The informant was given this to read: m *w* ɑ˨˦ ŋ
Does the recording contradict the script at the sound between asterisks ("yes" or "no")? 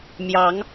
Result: yes